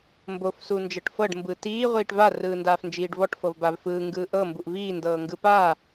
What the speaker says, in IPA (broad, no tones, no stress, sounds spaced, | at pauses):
m b o f s u n d͡ʒ ɤ ʈ f ɤ ɖ m b ɯ t iː ʁʷ iː ʈ v a r ɯː n d aː f n d͡ʒ iː ɖ v ɔ ʈ f ɤ v b a v f ɯː ŋ ɡ ɯː ʔ ɤ m b u ʔ v iː n d ɤː ŋ ɡ ɯ p aː